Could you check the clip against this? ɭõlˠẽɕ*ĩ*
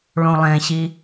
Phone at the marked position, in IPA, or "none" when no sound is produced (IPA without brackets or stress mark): i